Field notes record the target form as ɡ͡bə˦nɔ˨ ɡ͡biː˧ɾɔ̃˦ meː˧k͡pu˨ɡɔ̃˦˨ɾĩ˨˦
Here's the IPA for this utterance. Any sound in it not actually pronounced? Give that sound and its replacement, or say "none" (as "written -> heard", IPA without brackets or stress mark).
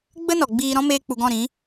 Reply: none